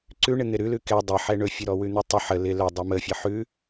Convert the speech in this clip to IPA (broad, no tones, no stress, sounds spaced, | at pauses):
ǀ ʉ ɳ ɪ n̪ ɪ ɾ ʉ l ʉ k ɛ dˤ ə ħ ɛ ɳ ɵ fʲ ʉ ɾ ɔ w ʉ n̪ u tˤ ə ħ ə l ɪ l ɵ dˤ ɛ m ə fʲ ə ħ ʉ